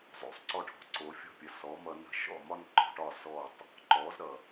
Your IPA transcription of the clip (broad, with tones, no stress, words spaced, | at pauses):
zˤo̰˩sˤ ǀɔ˧ʈʰɔ̤˩ ǀo˩˥fʲɔ̤˥˩pʲə˩˥ sɔ˩˥mʌ˧nə̤˥˩ ʃɔ̰˥˩mɒ˥nǃɔ̤˥˩ʈɒ˥˩ sɔ˥˩tˤ | ǃɔ˩˥zɾʌ˩